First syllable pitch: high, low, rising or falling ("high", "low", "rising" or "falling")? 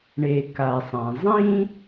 low